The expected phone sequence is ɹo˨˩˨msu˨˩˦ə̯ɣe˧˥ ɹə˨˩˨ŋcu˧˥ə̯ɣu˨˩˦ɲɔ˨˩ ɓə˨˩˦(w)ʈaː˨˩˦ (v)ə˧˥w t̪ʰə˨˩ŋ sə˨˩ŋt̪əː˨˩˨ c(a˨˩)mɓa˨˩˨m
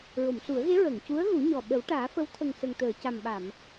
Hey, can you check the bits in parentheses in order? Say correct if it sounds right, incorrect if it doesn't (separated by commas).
correct, incorrect, correct